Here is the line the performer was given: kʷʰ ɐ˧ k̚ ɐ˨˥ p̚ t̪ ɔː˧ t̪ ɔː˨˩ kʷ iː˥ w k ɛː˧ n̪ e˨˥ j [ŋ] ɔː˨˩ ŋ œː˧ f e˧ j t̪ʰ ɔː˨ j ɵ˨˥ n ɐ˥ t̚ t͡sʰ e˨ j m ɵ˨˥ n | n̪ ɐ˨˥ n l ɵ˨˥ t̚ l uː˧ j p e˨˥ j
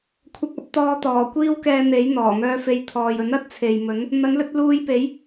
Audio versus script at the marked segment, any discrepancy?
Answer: yes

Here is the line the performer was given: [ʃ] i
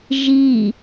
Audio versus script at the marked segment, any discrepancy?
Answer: yes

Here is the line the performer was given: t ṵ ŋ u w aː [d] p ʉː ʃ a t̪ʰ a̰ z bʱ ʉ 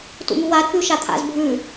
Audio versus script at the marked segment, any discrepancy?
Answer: no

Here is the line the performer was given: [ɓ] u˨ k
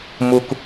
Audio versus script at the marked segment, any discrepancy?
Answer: yes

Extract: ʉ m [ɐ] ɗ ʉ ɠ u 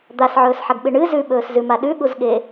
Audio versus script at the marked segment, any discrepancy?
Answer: yes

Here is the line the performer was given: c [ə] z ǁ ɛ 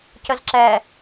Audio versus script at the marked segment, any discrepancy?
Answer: no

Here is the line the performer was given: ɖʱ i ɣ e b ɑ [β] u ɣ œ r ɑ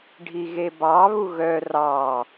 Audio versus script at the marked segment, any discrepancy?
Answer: no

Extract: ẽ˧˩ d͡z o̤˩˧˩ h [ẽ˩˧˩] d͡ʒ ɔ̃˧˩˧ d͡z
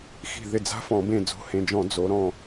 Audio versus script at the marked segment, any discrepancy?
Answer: no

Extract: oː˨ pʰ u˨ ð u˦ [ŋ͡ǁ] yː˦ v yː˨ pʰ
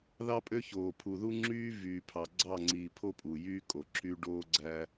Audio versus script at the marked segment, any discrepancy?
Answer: no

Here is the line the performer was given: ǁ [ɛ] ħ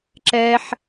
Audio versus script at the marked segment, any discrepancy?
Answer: no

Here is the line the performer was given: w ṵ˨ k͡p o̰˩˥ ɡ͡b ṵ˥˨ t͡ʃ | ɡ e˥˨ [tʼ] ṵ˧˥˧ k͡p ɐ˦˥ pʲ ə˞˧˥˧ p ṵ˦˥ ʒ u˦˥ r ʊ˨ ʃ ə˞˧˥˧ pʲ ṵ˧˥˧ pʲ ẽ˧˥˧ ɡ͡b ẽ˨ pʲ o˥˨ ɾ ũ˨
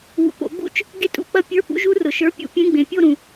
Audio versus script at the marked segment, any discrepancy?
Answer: no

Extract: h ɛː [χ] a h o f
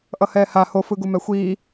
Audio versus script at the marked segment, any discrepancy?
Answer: yes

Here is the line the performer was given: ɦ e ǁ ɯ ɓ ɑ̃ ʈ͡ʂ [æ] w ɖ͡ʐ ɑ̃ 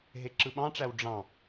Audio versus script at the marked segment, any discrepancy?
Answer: no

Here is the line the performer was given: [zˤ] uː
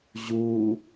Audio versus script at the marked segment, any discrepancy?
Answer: yes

